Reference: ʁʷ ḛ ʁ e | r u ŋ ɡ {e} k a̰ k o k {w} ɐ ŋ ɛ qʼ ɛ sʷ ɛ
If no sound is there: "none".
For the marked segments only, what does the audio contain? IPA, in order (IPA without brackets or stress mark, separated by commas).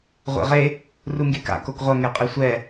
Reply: e, ʁʷ